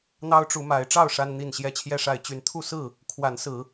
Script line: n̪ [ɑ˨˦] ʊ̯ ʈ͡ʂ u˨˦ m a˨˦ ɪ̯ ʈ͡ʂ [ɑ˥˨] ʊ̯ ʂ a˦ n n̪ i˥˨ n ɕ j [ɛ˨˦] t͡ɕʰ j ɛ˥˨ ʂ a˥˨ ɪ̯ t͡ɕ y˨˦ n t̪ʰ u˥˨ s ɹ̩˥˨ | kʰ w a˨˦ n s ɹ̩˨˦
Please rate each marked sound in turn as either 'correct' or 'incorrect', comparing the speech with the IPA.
incorrect, correct, incorrect

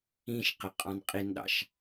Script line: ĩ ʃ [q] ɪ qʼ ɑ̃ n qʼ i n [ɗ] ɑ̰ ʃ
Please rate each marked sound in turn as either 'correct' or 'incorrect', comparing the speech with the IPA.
correct, correct

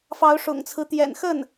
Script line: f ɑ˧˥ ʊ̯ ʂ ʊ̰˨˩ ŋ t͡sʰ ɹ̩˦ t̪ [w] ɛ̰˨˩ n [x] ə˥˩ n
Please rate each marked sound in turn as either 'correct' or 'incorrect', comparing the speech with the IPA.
incorrect, correct

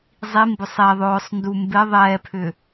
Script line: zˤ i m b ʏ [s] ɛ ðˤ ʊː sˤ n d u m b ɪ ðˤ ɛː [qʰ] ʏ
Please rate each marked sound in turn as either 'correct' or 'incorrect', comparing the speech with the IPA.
incorrect, incorrect

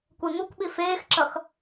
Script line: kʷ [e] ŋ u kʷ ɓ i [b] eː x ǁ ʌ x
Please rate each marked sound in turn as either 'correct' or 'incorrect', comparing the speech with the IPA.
correct, incorrect

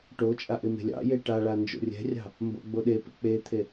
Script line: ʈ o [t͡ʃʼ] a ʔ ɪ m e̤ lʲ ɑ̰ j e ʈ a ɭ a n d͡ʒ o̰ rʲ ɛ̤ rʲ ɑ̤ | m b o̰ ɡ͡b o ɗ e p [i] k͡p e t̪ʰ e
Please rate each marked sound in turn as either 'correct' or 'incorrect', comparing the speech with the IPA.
correct, incorrect

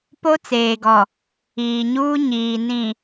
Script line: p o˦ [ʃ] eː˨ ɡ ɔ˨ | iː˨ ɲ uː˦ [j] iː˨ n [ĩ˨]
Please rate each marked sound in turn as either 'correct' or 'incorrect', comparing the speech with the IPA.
incorrect, incorrect, correct

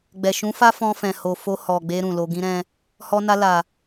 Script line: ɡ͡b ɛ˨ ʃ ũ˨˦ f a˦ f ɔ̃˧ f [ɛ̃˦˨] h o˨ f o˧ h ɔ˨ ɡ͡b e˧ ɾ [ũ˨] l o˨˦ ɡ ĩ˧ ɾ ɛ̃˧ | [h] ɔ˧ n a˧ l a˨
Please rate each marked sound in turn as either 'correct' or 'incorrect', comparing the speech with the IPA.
incorrect, correct, correct

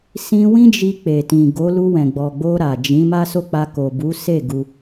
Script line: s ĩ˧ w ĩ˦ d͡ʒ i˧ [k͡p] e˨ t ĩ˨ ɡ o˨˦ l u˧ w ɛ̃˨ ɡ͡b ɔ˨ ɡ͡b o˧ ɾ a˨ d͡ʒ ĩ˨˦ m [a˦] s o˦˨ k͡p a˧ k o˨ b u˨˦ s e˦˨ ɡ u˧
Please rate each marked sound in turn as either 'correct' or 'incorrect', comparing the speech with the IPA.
correct, correct

